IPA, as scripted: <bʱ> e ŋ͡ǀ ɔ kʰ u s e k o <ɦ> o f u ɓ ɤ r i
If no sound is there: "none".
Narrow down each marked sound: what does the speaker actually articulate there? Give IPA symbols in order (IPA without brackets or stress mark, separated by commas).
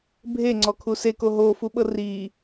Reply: bʱ, ɦ